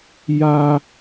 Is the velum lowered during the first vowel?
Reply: no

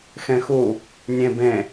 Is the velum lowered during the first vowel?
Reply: yes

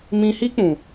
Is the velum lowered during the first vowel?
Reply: yes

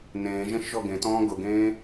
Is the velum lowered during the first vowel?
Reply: yes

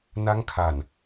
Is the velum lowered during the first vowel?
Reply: no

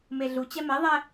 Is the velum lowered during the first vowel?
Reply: no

